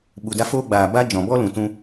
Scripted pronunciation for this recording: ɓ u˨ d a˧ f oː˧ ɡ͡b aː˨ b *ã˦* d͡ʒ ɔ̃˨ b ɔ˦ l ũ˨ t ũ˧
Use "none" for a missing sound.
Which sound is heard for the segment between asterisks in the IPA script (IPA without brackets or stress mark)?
a˦